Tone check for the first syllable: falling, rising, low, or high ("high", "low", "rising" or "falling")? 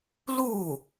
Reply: falling